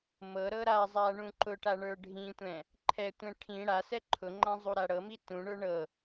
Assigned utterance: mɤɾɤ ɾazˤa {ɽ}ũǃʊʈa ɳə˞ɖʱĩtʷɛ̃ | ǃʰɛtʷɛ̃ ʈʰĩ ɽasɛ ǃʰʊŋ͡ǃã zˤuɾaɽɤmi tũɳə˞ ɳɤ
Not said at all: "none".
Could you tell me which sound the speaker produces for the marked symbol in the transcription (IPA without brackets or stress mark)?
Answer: ɳ